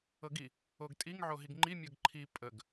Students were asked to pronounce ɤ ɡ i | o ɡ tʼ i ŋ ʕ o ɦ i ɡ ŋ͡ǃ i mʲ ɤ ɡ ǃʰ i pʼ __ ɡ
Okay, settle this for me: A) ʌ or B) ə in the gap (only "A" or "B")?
B